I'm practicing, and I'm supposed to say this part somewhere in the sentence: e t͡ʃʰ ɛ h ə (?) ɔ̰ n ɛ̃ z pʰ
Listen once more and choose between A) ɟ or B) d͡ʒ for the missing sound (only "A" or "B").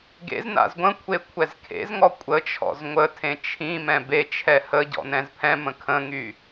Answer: A